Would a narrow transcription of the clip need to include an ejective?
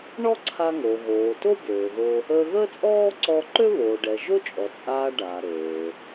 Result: yes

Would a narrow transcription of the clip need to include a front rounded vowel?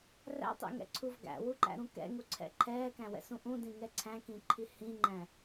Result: no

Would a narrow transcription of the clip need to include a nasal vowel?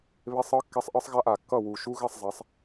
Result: no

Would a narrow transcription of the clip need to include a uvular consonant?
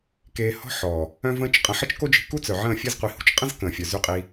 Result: yes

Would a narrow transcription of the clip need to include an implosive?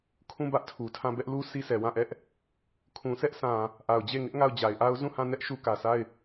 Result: no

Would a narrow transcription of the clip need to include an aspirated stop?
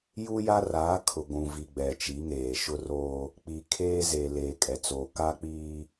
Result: yes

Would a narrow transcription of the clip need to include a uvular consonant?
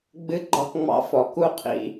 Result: yes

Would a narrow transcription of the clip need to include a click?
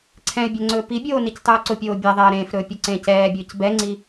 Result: yes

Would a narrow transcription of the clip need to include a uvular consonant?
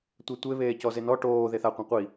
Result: yes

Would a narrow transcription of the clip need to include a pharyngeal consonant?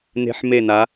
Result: yes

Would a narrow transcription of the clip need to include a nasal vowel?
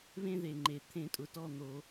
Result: yes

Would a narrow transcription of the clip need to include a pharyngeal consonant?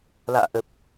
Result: no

